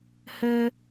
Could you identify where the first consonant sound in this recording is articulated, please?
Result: glottal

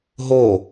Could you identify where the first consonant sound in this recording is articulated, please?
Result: glottal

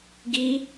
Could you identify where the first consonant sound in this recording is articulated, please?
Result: velar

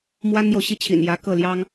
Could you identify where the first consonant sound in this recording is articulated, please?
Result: labial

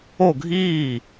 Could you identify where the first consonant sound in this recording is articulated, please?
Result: velar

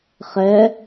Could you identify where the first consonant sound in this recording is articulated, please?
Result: uvular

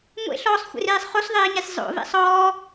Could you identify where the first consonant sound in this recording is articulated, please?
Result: velar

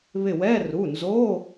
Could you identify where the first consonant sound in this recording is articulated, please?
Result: labial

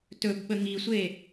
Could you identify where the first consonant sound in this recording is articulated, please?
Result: alveolar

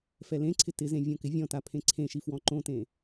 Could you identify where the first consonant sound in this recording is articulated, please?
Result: labial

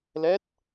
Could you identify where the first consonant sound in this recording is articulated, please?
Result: alveolar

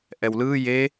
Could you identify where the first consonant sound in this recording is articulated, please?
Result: glottal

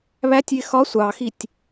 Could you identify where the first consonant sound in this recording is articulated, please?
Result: labial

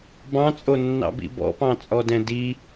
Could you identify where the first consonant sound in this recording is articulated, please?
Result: labial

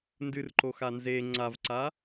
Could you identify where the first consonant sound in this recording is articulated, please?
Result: alveolar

